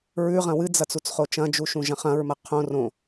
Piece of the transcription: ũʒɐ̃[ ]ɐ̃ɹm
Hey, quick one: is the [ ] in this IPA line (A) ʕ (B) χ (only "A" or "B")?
B